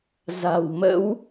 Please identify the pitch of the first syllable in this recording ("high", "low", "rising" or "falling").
low